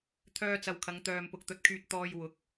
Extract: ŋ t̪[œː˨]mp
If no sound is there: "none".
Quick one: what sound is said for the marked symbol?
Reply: œː˨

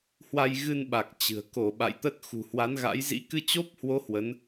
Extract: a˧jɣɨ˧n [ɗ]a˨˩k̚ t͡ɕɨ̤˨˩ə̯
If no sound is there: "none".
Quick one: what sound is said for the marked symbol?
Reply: ɓ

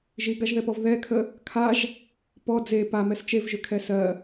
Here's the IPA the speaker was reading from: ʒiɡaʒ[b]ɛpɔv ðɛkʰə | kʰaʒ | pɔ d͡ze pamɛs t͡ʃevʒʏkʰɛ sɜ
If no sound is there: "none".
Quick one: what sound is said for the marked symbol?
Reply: ð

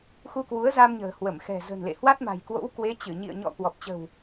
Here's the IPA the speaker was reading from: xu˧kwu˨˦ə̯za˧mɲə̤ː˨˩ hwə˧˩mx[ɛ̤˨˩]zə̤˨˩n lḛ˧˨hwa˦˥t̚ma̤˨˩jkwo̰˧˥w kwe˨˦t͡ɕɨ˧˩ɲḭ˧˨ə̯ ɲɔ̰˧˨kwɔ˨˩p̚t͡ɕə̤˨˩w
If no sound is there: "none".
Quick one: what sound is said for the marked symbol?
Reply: ɛ̤˨˩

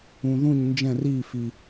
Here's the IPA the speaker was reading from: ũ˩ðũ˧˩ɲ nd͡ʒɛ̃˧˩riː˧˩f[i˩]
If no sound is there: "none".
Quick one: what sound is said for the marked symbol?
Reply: i˩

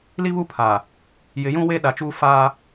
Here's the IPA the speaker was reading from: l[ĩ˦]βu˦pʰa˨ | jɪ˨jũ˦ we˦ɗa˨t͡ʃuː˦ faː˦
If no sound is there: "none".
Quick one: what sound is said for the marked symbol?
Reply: i˦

